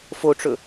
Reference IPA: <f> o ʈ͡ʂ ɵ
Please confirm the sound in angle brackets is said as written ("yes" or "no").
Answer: yes